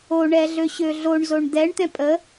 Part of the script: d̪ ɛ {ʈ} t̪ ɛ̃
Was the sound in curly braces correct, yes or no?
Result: no